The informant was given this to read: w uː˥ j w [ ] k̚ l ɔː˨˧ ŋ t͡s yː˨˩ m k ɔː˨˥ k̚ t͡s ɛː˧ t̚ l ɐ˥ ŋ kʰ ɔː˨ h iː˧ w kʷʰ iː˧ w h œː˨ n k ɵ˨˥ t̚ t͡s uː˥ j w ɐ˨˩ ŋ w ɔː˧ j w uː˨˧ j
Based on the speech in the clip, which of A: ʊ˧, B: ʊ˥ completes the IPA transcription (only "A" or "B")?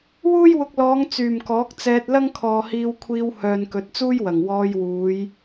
A